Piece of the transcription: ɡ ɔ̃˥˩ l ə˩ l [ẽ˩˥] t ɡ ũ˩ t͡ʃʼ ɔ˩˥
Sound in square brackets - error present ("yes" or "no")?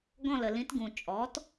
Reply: yes